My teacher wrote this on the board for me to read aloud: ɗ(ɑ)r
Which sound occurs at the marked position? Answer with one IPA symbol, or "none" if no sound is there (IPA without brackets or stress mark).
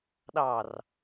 ɑ